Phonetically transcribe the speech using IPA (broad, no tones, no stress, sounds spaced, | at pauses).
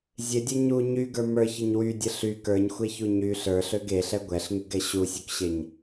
zʲ e dʲ ɛ ɲ u ɲ y ɡ ə˞ m ə˞ ç ə ɲ w y dʲ ə ɬ y k ə˞ ɲ xʷ e ç u ɲ y ɬ ə˞ ɬ ø ɡ e ɬ ɛ ɡʷ ɛ ɬ ŋ y ɡ ɛ ɕ u sʲ u k ɕ e ɲ